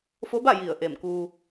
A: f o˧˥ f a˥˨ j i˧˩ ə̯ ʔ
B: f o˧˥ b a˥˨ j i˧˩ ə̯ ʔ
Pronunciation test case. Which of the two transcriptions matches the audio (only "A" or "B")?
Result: B